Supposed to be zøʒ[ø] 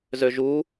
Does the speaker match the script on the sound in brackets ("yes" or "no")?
no